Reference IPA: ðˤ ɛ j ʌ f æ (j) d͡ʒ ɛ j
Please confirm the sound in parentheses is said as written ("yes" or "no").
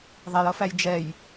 yes